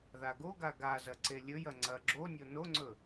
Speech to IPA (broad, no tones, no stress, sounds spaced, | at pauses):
ð a ɡ o ɡ a ɡ a z ɐ ǀ e lʲ ɵ j ɐ ŋ͡ǀ ɐ ɡ͡ǁ o nʲ o n o ŋ͡ǀ ɵ